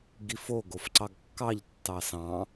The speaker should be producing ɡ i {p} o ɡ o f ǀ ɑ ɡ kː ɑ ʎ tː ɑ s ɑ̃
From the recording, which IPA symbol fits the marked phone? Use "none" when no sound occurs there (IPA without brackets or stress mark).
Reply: f